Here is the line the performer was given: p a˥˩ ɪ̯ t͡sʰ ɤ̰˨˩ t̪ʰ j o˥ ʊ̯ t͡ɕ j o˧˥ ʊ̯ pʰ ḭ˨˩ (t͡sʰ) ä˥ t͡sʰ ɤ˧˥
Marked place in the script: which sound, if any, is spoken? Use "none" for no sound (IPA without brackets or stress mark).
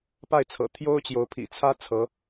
t͡sʰ